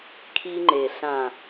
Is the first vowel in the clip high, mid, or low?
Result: high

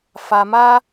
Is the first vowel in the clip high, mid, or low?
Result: low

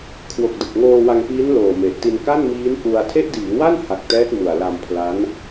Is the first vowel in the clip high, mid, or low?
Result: mid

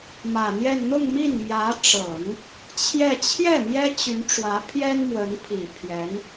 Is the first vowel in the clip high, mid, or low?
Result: low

